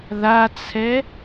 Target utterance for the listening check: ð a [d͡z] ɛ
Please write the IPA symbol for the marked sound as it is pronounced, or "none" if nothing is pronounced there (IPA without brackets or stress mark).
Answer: t͡sʰ